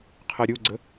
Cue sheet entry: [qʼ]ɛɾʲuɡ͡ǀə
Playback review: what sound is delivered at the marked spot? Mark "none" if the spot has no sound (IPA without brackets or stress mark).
qʰ